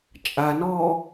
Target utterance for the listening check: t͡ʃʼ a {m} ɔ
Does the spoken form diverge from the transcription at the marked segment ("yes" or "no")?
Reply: yes